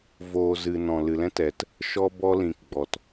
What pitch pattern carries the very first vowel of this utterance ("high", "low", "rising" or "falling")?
low